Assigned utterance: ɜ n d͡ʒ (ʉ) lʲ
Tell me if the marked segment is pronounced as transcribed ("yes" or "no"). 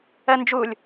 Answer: no